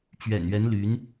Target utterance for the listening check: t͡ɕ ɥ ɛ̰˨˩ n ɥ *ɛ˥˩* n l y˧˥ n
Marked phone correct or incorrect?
incorrect